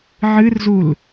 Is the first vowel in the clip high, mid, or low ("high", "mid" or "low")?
high